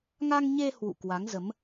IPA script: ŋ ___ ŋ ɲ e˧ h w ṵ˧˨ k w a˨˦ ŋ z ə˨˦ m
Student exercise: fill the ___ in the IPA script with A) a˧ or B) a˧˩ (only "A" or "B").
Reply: A